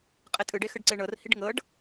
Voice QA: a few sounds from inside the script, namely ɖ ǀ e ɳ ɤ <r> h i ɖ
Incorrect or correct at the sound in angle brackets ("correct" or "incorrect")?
correct